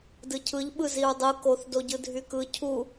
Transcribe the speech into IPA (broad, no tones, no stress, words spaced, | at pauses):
dɯcʰɯʎ ɓɯziɹdˤɯ koθ doɟɯdʱykɯ cʰu